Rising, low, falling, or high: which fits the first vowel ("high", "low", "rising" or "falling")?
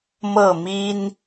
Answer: falling